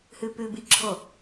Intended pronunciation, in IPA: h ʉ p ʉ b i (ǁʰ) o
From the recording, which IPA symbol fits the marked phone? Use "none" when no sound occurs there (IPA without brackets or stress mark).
ǁʰ